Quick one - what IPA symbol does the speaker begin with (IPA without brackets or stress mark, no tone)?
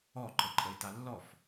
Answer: ɔ